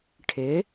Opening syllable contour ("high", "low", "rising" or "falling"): rising